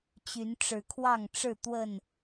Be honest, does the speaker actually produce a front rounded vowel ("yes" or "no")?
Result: yes